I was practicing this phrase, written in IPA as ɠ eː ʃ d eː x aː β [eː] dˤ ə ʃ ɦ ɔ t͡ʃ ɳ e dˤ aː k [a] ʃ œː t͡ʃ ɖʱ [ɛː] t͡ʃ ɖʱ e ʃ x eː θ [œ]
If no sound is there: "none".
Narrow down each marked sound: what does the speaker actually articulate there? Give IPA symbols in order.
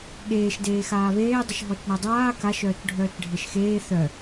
eː, a, œː, œ

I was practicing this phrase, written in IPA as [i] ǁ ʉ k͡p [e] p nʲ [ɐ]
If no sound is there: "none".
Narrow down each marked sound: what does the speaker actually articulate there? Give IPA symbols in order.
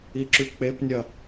i, e, ɐ

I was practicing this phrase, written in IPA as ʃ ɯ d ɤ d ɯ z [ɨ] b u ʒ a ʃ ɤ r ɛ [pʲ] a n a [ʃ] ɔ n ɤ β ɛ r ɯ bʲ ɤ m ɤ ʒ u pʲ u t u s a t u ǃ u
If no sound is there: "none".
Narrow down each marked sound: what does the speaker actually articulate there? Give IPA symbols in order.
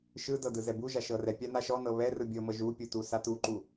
ɛ, pʲ, ʃ

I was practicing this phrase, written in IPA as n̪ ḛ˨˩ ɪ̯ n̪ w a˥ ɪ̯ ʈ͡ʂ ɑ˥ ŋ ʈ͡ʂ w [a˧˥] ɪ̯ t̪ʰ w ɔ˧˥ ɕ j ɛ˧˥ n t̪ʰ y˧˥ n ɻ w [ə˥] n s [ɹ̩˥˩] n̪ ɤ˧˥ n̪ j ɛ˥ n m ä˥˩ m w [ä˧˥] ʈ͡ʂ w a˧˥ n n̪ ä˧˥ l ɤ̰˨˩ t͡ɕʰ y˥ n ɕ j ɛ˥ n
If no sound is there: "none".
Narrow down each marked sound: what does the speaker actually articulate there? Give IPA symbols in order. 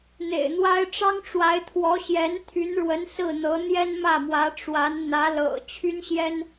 a˧˥, ə˧˥, ɹ̩˥˩, ä˧˥

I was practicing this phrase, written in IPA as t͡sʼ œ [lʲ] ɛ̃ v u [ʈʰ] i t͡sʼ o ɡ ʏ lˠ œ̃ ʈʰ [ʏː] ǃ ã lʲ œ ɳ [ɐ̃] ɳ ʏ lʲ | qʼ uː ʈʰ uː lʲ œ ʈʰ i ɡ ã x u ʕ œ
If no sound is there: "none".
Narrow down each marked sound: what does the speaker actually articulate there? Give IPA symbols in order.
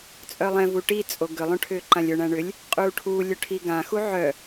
lˠ, ʈ, ʏː, æ̃

